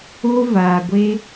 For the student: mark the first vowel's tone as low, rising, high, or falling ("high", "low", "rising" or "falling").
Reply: high